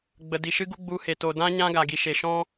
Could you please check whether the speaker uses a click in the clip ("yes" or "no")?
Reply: no